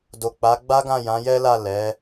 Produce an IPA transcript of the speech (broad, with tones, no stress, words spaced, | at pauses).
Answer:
do˨k͡pa˨˦ ɡ͡ba˦ɡã˦˨ jã˨˦jɛ˦la˦˨ lɛ˨˦